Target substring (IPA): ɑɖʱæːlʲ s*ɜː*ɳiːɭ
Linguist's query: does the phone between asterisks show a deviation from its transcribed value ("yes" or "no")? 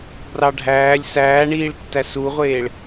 yes